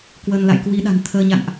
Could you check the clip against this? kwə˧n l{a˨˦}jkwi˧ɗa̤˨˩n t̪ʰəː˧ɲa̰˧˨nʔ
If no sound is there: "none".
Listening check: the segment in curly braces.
a̰˧˨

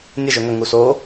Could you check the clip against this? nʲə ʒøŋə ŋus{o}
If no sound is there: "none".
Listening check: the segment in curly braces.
o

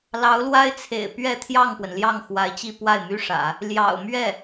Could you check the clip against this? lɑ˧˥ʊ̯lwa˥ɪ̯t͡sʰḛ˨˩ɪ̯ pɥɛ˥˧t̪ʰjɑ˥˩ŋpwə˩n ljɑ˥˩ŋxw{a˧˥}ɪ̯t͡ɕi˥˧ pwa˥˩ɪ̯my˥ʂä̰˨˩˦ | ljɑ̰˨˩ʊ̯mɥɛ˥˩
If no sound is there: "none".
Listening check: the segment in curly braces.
a˧˥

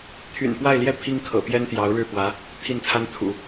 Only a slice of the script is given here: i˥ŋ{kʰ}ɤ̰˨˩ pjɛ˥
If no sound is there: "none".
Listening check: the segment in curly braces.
kʰ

